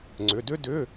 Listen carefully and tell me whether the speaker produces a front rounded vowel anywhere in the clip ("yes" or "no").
yes